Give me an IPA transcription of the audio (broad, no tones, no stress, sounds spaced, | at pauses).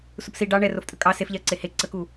s u p s i ɖ ɑ ɳ ɛ r o f tʼ ə kʼ ɑ s e f ʎ ɛ ə̯ ǀ e h e ǀ ə k u